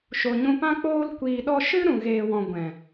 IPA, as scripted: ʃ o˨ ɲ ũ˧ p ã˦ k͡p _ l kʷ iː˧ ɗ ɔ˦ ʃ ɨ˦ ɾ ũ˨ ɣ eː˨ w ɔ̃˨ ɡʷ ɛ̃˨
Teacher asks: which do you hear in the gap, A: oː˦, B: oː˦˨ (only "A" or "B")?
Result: A